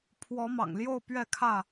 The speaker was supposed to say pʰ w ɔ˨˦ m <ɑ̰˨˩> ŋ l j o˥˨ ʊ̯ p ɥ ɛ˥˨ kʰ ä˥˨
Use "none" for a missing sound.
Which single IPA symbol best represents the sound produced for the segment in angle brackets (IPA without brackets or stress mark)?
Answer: ɑ̰˨˩